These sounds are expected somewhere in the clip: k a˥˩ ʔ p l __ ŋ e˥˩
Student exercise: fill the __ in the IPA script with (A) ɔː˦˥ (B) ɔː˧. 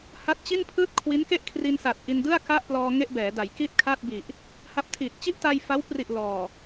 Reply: B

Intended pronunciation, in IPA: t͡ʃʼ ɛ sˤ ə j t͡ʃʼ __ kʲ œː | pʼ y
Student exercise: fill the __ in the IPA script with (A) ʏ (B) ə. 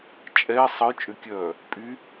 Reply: A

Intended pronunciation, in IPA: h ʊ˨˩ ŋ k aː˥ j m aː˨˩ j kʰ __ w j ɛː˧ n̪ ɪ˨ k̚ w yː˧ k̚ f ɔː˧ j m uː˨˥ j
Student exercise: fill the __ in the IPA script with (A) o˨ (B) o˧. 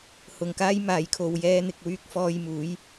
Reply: A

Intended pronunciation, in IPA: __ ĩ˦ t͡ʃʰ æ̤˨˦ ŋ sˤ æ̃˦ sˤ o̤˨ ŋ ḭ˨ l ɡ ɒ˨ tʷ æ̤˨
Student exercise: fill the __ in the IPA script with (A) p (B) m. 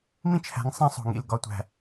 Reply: B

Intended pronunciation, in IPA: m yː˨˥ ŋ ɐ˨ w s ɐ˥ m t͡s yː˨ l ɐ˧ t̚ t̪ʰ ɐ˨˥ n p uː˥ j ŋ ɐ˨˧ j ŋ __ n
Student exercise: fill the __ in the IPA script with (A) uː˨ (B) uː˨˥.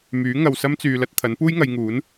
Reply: B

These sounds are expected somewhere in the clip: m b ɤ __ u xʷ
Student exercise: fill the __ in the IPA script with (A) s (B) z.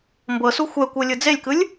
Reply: A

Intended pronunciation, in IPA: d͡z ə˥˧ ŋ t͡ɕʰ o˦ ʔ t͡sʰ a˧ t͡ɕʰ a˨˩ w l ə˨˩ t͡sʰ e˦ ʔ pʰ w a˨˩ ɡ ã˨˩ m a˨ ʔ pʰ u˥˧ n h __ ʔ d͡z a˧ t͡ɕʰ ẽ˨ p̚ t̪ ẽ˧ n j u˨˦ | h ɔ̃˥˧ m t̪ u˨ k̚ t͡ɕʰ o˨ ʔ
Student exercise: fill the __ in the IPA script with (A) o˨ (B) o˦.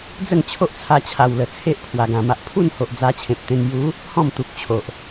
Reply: A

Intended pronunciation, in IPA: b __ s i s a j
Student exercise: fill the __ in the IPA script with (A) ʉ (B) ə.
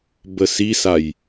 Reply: B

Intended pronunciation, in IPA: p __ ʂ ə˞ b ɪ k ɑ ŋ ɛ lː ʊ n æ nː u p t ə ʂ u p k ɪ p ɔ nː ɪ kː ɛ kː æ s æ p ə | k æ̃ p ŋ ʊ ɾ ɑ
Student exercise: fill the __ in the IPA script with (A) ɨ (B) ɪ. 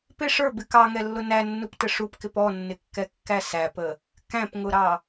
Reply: B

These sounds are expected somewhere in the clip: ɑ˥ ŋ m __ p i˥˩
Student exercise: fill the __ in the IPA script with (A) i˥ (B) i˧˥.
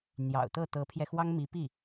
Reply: B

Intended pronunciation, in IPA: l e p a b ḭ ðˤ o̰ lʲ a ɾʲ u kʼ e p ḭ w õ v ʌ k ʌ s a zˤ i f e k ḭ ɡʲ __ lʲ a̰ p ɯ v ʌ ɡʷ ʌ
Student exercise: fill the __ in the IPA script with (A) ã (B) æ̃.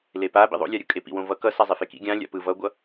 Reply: A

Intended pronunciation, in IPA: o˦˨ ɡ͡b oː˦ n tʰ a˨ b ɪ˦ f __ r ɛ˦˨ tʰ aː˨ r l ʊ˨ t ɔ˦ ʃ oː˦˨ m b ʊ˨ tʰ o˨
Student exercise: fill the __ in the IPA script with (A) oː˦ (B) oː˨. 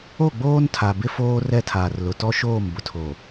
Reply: A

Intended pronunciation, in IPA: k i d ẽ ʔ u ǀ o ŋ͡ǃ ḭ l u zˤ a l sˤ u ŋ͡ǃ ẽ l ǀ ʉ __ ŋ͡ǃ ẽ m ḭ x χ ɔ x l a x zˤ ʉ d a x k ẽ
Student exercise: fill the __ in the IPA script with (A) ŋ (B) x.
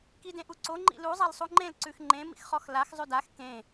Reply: B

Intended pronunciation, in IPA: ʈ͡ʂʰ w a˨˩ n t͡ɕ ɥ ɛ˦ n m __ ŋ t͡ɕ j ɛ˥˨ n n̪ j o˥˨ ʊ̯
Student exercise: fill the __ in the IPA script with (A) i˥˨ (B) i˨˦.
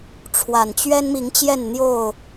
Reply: B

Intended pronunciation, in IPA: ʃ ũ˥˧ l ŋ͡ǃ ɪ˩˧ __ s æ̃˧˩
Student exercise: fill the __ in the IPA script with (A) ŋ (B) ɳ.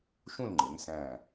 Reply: A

